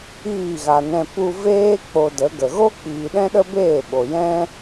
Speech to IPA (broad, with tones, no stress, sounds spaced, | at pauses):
iː˦˨ ɣ a˨ n ɛ̃˧ p u˧ v eː˦ k͡p o˧ d ə˨˦ ɡ ə˨ ɣ o˦ k͡p iː˨ ɗ ɛ̃˦ ɗ ə˦ b eː˦˨ ɓ o˨ j ɛ̃˦